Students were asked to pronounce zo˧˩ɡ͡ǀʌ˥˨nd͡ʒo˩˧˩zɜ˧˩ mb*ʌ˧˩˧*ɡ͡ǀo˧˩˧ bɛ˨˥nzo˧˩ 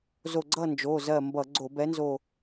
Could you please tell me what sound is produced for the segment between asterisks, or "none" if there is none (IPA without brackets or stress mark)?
ʌ˧˩˧